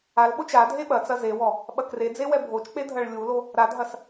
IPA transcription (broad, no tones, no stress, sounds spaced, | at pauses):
a l ɓ o t͡ʃ a dʱ e ɓ ɐ t͡s ɐ z e w ɔ | ɓ ɐ k r e d͡z e w ɛ bʱ o t͡ʃ k͡p e dʱ ɐ ɭ lʲ u l o | ɾ a dʱ ɐ s